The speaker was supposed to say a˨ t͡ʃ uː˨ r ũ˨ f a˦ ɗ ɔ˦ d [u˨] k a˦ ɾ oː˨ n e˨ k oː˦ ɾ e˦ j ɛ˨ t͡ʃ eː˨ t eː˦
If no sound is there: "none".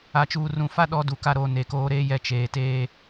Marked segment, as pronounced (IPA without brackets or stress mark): u˨